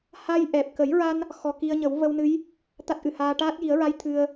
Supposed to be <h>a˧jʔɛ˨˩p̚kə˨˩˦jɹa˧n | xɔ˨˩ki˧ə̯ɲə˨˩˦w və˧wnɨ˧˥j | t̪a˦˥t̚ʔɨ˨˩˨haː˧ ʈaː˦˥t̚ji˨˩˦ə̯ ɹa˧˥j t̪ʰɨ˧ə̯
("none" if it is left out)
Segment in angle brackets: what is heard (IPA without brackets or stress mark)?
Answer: h